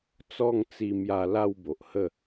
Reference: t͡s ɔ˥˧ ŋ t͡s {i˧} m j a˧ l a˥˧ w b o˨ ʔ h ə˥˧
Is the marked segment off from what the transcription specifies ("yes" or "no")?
no